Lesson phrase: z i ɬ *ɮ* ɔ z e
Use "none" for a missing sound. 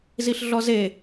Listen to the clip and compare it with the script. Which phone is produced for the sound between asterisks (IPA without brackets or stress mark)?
ɮ